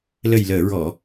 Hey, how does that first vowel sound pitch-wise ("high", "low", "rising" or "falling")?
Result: low